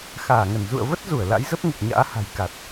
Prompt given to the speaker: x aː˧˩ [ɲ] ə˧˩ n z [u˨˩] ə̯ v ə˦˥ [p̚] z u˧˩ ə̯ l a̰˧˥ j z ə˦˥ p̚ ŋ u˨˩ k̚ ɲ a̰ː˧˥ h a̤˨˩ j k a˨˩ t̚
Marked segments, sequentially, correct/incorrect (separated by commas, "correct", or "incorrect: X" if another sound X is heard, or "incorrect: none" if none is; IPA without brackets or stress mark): incorrect: ŋ, incorrect: ṵ˧˨, incorrect: t̚